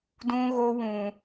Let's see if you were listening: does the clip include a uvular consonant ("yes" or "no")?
no